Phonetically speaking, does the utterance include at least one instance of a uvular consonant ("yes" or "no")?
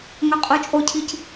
yes